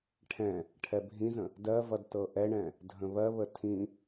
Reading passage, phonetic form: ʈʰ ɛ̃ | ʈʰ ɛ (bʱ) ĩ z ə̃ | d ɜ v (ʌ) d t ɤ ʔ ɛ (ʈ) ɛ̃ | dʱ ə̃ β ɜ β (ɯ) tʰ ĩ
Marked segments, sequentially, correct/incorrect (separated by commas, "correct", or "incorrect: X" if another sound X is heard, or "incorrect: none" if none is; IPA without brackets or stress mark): correct, correct, incorrect: ɳ, incorrect: ə